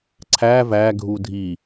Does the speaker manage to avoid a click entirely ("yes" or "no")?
no